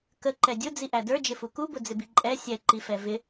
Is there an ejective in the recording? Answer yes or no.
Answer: yes